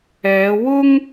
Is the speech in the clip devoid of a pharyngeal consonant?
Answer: yes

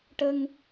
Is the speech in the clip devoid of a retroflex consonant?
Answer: no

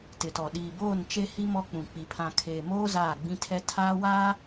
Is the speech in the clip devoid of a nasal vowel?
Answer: no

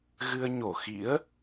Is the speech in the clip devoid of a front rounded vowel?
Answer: yes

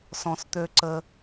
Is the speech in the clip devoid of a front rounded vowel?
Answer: no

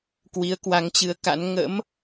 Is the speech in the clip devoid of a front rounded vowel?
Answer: yes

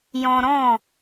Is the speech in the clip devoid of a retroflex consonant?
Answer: yes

